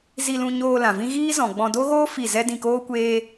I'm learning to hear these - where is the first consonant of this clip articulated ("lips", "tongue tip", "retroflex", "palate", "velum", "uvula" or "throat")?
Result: tongue tip